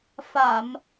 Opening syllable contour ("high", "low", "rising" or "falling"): low